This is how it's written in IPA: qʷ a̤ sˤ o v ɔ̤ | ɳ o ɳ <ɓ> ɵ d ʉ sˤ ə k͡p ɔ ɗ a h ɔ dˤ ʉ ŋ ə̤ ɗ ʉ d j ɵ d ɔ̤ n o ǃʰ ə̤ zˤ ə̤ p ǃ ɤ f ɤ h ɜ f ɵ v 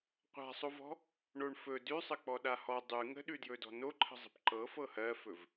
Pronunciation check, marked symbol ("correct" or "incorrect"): incorrect